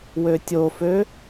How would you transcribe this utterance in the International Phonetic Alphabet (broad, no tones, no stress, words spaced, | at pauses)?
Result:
wøtʲofø